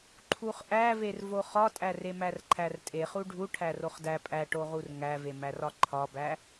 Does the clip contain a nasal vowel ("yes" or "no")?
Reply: no